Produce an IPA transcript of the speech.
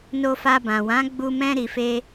n o˧ f a˧ b ã˨ w ã˨˦ ɡ͡b u˧ m ɛ̃˧ ɾ i˨ f e˧

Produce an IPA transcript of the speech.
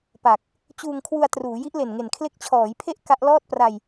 p a˨˩ k̚ | t͡ɕ uː˧ ŋ kʰ w u˧ a̯ t r uː˩˦ j i˦˥ ʔ l e˨˩ n ŋ e˨˩ n kʰ l e˦˥ k̚ t͡ɕʰ ɔː˩˦ j pʰ e˦˥ ʔ k a˦˥ ʔ l ɔː˥˩ t̚ p r a˧ j

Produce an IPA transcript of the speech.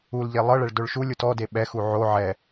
u l ʎ e lˠ ɤ ɭ ɛ ɭ d o ɭ ʃ u lʲ u t ɔ d e ɓ ɛ x u ʕ o ʕ ɛ

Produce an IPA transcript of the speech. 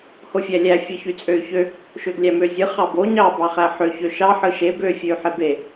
h o fʲ æ lʲ æ fʲ ɯ ç y t͡sʼ ø y̯ ç ø | ʃ ø ɡ lʲ æ m ø zʲ ɯ χ ɑ b o ɲ ɑ b ɑ χ æ ħ ø ç ø ʃ ɑ ħ ɯ ʃ e b ø fʲ ø y̯ ħ e b e

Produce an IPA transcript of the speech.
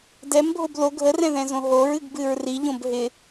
d ɛ m bʱ o b l o ɡʱ ə r ɛ̃ ð ɛ̃ z õ ɦ o ɹ ɨ ɡ b ɨ ɹ r i ʎ õ b ɦ ɪ

